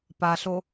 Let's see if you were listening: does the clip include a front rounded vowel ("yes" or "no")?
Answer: no